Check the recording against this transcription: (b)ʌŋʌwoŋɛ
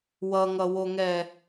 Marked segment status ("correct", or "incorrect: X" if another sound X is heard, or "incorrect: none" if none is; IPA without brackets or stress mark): incorrect: w